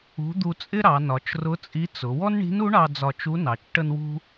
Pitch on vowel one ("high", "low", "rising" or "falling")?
rising